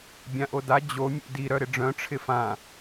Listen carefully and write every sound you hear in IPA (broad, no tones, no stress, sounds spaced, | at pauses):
bʲ ã ʔ o d a d͡ʑ o mʲ ṵ d i ɾ œ ɾ ɪ ɖ͡ʐ œ̃ ʈ͡ʂʰ ɪ f ã